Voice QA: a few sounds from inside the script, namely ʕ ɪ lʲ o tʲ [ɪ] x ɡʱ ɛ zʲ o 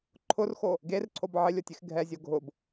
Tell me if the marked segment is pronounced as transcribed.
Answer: yes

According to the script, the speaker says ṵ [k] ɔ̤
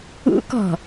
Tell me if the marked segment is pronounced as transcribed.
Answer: yes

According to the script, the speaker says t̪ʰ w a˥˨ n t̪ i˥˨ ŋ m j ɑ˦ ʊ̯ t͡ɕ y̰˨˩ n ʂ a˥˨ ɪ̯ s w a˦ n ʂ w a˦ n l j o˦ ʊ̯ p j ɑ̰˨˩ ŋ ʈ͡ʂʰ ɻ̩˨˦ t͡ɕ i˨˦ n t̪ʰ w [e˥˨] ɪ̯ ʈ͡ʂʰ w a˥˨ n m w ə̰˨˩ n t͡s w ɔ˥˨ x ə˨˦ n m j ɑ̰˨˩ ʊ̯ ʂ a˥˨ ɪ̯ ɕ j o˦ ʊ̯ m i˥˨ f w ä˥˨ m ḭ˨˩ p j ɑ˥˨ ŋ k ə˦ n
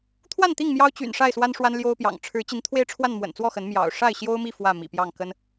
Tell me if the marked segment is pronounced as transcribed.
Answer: no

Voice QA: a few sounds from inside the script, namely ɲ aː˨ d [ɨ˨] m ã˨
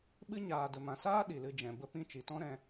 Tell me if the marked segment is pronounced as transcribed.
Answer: no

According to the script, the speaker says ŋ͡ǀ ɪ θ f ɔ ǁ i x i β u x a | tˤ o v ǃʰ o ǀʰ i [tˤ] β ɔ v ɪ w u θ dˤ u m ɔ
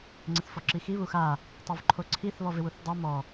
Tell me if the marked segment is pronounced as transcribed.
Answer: no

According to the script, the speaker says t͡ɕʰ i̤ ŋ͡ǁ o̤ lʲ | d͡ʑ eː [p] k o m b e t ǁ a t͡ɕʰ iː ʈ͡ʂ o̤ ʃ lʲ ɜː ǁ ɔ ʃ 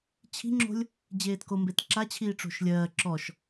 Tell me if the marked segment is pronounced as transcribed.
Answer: no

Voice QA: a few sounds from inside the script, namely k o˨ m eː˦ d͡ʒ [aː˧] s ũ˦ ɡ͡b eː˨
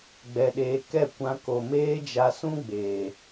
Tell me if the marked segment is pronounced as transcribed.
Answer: no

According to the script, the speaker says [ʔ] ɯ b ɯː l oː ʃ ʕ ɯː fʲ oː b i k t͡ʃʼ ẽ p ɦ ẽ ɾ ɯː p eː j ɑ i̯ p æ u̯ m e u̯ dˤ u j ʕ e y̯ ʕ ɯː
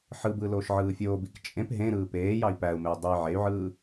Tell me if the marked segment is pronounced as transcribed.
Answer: no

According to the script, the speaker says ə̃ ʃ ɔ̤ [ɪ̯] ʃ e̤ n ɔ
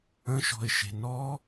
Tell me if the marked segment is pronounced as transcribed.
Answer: yes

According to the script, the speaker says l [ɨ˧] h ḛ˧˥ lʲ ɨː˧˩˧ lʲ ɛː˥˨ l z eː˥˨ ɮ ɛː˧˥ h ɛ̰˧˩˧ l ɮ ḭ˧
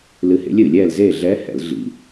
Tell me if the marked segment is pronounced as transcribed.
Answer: yes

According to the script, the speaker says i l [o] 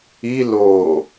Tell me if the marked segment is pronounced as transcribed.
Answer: yes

